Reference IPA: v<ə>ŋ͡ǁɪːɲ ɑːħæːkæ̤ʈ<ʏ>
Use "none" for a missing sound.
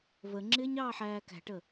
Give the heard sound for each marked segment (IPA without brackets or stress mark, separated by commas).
ə, ə